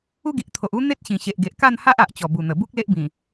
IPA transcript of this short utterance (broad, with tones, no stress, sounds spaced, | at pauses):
u˦ ɡ i˨ ʔ t̪ʰ o˨ ʔ u˦ n̪ e˦ t̚ ɕ ĩ˨˩ ɕ e˨ ʔ ɡ e˨ ʔ k a˥˧ n h a˦ ʔ a˨ ʔ t͡ɕ ɔ˨˩ b u˨˩ n̪ ə˨˩ b u˦ k̚ l e˦ ʔ b ĩ˨˩